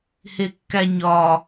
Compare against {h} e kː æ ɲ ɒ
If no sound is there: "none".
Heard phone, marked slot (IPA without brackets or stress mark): h